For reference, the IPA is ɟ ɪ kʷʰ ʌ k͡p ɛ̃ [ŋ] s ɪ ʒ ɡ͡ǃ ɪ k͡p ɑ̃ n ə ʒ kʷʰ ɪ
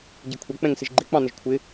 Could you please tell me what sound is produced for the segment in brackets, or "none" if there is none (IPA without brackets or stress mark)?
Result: ŋ